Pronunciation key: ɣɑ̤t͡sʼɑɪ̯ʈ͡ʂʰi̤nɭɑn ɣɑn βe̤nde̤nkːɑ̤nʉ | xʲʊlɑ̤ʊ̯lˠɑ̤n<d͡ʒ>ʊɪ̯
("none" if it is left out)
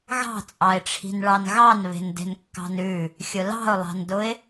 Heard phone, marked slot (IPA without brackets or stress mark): d